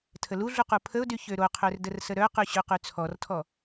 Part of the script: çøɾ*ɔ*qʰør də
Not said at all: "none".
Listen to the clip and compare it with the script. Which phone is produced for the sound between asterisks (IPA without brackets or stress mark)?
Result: o